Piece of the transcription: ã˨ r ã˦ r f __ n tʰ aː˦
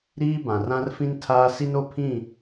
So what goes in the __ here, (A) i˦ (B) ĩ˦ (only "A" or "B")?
B